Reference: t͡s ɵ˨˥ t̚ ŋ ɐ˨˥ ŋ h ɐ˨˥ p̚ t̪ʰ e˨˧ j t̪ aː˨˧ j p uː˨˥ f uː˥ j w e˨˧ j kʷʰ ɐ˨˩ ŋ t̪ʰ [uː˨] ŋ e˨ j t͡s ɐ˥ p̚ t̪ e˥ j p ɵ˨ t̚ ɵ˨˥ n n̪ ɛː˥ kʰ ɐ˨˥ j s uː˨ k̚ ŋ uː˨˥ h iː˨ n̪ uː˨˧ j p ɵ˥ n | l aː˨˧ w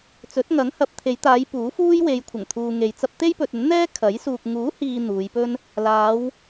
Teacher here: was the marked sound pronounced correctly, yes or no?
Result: yes